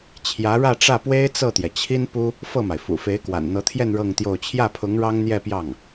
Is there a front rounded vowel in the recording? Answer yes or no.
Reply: no